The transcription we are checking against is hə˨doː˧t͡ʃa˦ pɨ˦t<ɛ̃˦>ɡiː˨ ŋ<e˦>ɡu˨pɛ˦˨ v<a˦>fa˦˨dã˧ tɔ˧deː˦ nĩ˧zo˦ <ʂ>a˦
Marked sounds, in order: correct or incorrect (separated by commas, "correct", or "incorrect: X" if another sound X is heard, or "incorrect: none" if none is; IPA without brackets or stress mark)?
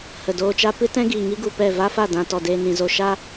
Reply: correct, incorrect: i˦, correct, incorrect: ʃ